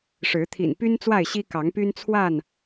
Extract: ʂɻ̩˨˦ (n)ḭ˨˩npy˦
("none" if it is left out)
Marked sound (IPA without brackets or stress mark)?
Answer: t̪ʰ